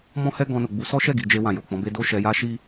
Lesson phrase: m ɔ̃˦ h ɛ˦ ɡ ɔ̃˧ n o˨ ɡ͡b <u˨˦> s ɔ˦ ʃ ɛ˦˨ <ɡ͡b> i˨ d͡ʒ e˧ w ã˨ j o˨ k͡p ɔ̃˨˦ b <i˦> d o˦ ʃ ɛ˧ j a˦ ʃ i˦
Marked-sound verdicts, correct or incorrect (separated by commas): correct, incorrect, incorrect